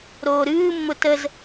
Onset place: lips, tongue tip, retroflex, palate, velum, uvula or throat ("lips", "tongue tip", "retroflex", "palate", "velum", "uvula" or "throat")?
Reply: tongue tip